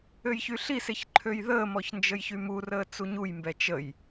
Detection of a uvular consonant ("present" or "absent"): absent